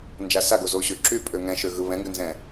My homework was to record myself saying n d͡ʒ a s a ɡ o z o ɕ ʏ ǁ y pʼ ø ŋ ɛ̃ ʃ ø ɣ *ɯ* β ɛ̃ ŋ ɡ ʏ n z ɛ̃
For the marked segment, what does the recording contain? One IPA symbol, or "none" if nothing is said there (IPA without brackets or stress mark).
ɯ